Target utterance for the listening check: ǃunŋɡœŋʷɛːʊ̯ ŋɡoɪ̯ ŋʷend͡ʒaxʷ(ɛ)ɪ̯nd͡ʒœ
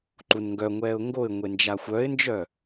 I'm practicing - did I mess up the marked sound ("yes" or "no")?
yes